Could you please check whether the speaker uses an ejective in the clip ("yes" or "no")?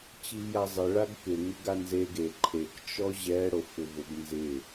no